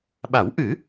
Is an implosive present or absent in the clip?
present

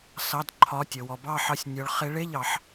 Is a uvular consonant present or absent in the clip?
present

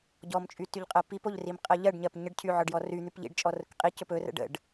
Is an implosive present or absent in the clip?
absent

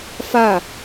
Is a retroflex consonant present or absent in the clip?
absent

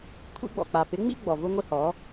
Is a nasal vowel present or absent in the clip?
absent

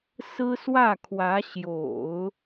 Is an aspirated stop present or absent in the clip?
present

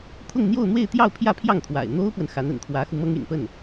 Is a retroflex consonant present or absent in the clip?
absent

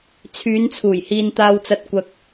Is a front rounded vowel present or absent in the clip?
present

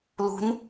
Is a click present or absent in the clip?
absent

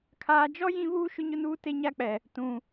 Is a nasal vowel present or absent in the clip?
present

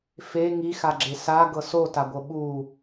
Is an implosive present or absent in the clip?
present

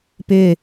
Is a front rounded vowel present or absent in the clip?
present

